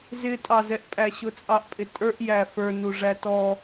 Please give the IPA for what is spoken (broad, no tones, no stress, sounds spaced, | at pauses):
z ɪ tʼ ɑ z ɛ ʔ pʼ æ ɕ ʊ t͡sʼ ɑ ʔ pʼ ɪ tʼ ə˞ ʔ j æ f ə˞ n u ʐ æ t ɔ